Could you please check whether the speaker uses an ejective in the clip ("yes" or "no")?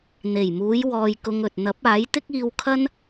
no